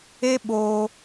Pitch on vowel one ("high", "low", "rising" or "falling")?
high